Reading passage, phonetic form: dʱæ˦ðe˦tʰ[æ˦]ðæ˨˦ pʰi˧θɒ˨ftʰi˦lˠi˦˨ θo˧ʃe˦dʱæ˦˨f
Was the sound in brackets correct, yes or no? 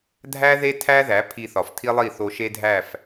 yes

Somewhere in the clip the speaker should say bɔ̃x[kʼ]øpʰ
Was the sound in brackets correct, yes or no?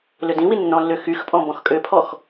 yes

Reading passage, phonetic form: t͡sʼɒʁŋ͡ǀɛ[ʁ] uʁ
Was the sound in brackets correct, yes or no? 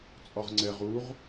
yes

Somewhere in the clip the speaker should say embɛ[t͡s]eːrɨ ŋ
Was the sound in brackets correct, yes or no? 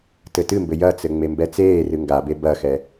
yes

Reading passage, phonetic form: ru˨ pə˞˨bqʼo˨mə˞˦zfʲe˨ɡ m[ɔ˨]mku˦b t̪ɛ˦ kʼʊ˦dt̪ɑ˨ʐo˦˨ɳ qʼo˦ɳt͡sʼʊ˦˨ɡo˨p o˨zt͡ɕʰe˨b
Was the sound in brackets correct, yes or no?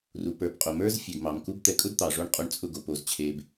no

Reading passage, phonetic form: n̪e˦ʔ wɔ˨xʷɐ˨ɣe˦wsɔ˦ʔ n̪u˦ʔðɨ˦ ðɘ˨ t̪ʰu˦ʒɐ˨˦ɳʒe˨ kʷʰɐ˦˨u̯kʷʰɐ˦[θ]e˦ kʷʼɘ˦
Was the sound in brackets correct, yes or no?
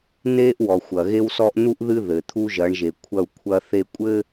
yes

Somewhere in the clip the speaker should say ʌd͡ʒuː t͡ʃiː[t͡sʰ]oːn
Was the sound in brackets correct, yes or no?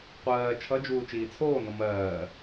yes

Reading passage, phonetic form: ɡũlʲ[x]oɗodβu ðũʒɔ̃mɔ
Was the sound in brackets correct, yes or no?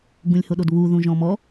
no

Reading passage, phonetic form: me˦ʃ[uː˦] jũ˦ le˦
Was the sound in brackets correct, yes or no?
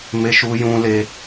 no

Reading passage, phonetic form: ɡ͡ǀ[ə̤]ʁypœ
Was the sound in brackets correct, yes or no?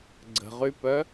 yes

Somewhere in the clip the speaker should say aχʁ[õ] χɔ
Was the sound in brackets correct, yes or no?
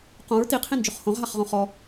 yes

